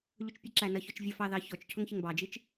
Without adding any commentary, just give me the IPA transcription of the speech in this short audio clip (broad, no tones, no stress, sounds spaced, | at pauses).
ʎ ʊ t͡ʃ pʲ ə ǁ æ n ʌ ç ɔ t͡ʃ vʲ ʌ f ɑ ð ɑ ç ɔ t͡ʃ cʰ ʊ ŋ ç ɪ ŋ b ɑ d͡ʒ i t͡ʃ